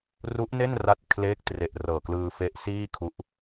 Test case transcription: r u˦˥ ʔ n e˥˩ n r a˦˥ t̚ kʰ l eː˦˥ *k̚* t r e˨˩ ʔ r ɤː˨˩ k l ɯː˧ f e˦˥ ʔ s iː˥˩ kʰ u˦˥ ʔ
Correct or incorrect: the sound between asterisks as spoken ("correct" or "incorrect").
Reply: correct